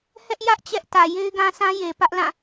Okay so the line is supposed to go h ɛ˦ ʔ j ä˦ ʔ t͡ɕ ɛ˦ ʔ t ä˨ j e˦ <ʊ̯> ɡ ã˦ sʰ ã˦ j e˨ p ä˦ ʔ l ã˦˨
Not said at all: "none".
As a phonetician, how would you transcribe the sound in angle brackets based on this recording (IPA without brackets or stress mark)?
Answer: ɪ̯